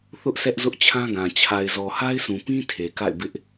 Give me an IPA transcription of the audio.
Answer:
θ ʊ˦ ʔ sʰ ɛ˦ ʔ z ʊ˦ ʔ t͡ɕʰ ã˦ ɡ ã˨ t͡ɕʰ a˨ ɪ̯ z ɔ˨ h a˦ ɪ̯ sʰ ũ˨ p ĩ˦ tʰ e˨ k a̰˦˨ ɪ̯ b ɪ˦ ʔ

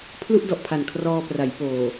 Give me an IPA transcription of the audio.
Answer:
pʰ l u˥˩ ʔ d ɔ˨˩ ʔ pʰ a˨˩ n kʰ r ɔː˧ p r a˩˦ j p oː˨˩

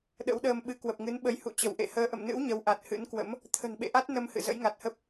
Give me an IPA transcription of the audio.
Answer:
ɗ ə̰˧˥ w ɗ əː˧ m ɓ ɨ˨˦ k w ə˨˩ p̚ ŋ ɨ˨˦ n ɓ ə˨˦ j h ṵ˧˨ t͡ɕ ə˧˩ w ʔ ḛ˧˨ h əː˧ ʔ ə̰˧˨ m n ɨ̰˧˥ w ɲ ə˨˦ w ʔ a˨˩ t̚ h ɨ̰˧˥ n k w ə̰˧˥ m | t̪ʰ ə̤˨˩ n ɓ ḛ˧˨ ʔ a˦˥ t̚ n ə˧ m h ɨ̰˧˨ z ə̰˧˥ j ŋ a˨˩ t̚ h ə˦˥ p̚

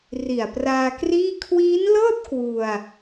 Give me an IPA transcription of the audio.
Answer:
r i˨˩ a̯ p r aː˧ k r iː˥˩ kʰ w iː˦˥ n l ɤː˥˩ t̚ k w u˧ a̯

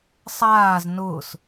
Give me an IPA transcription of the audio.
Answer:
sˤ aː z n ʊː s

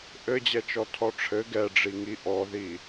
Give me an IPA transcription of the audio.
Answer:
ʔ ɘ d͡ʑ ɛ t͡ʃ ɔ tʰ ɔ ʈ͡ʂʰ ɘ ɡ ɛ ɖ͡ʐ i ŋ i ʔ ɔ ð i

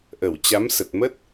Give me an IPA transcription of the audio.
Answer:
ʔ ə˧˩ w t͡ɕ a˨˦ m s ə˨˩ t̚ m ə˦˥ t̚

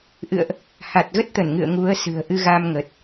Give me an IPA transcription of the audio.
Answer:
ʔ ɨ̰˧˨ ə̯ ʔ | h a˨˩ t̚ ɣ ə˦˥ t̚ t̪ ə˧˩ n ŋ ɨ̰˧˨ ə̯ ŋ u˨˦ ə̯ s ɨ̤˨˩ ə̯ ʔ ɨ˧ ɣ a˧ m ŋ ə˨˩ t̚

